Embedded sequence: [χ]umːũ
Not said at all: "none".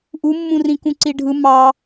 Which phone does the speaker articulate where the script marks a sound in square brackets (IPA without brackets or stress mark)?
ʔ